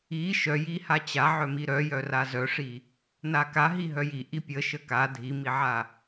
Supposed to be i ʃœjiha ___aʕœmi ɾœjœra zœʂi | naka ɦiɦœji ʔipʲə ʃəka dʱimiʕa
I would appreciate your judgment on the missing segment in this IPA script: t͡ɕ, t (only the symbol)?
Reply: t͡ɕ